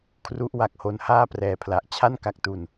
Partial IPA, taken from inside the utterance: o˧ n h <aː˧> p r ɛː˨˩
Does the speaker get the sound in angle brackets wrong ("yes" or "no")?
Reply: yes